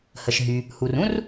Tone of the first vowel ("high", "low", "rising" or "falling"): low